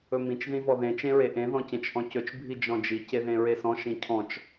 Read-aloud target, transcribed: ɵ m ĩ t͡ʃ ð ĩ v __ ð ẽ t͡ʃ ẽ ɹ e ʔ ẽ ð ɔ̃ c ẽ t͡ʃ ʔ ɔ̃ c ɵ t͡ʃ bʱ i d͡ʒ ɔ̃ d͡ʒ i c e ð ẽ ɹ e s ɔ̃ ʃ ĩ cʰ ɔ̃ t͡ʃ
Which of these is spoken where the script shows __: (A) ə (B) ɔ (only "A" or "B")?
B